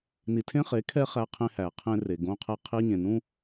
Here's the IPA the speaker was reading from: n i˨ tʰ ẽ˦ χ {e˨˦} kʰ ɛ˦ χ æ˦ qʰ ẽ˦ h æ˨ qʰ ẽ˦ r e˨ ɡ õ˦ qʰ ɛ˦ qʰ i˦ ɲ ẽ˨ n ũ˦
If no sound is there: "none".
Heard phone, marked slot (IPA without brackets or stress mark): e˨˦